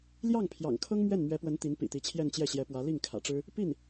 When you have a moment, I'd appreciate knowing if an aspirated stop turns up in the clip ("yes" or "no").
yes